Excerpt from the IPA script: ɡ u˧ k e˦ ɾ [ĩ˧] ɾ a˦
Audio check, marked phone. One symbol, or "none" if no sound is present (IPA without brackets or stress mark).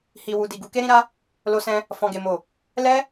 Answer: ĩ˧